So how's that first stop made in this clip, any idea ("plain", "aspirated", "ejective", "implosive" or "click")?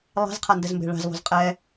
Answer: aspirated